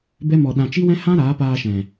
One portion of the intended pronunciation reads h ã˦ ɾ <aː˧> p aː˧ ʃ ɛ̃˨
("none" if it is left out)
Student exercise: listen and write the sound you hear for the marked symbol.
aː˨˦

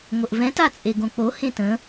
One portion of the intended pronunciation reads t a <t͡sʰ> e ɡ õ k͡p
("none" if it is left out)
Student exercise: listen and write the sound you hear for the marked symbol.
t͡sʼ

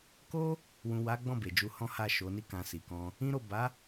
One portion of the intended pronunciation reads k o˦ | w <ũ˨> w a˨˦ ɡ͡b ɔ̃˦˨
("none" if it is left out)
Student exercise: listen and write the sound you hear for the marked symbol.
ũ˨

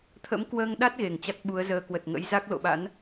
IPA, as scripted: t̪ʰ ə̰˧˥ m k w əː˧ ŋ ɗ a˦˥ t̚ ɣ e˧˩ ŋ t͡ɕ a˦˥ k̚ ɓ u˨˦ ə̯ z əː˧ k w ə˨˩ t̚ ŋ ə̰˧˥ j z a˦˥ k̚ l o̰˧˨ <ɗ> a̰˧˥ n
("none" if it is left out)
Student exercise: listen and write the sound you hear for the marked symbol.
ɓ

